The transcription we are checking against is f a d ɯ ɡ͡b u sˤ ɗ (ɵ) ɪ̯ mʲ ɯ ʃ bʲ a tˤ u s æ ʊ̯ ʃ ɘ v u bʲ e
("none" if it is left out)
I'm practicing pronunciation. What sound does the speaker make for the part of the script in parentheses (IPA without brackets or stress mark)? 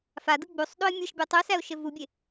o